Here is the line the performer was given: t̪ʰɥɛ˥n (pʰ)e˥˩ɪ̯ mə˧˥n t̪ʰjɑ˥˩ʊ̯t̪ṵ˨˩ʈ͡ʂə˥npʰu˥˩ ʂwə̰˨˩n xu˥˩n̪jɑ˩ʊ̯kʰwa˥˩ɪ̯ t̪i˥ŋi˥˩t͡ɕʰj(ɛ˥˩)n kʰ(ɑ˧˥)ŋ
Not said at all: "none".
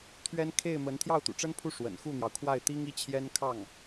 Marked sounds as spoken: kʰ, ɛ˥, ɑ˥˩

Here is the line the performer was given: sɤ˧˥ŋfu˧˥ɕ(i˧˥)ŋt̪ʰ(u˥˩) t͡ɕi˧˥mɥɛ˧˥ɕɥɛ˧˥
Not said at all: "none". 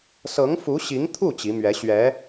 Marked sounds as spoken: i˧˥, u˥˩

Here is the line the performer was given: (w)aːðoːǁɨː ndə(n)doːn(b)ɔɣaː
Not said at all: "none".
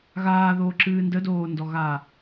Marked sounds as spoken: ɣ, none, d

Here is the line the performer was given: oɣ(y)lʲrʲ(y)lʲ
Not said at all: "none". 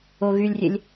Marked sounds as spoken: y, e

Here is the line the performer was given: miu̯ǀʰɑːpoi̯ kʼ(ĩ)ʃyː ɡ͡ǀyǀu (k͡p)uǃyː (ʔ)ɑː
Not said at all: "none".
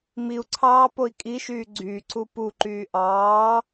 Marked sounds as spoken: i, p, ʔ

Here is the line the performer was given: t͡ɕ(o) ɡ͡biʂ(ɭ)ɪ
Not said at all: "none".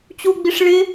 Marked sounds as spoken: u, ɭ

